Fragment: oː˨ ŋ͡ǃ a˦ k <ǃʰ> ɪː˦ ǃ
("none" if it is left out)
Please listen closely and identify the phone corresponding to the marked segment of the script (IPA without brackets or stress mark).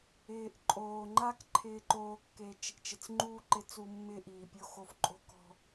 ǃʰ